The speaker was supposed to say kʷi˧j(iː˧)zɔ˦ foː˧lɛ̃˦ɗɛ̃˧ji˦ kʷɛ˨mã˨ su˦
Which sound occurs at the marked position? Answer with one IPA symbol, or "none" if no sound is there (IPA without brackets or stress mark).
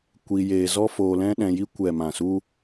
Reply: eː˧